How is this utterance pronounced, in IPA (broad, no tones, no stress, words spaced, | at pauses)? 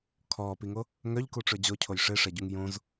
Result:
kʰɔːpiŋo | ŋœʎkuʈ͡ʂø d͡ʑocʰoj ʂeʂɛɟuŋ jõz